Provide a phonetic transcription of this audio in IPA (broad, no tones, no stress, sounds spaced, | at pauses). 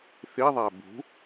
θ i ðˤ æ b ṳ